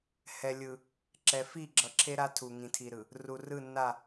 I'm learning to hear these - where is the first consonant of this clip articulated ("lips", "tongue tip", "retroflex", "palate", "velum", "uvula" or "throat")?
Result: throat